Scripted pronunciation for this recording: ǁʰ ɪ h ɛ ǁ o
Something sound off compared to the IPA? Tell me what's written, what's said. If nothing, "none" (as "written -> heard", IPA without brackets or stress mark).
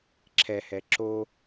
ɪ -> ɛ